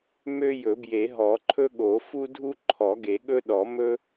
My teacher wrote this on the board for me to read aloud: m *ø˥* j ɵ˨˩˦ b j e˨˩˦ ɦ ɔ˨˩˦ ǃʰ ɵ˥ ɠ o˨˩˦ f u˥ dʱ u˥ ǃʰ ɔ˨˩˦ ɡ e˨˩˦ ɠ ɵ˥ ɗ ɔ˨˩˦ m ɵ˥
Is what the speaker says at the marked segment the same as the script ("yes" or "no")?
yes